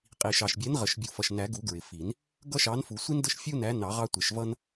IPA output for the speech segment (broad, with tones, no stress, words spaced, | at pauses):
qʼi˨˩ʃɑ˨˩ʃbʲɛ˨˦n ʁə˨˩ʃbʲu˨˩fʌ˨˩ʃ næ˨˩˦ɡu˨˩˦ ɡɹɪ˨˩fi˨˩˦n | ɡʌ˦ʃɑ˨˦nfu˨˩˦sʷi˦n də˦ʃfʲu˦næ˨˦ nɑ˨˩˦ʁɑ˦tʷɪ˨˩˦ʃ vʌ˦n